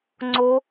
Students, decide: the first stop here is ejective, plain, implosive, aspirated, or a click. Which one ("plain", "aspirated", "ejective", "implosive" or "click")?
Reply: click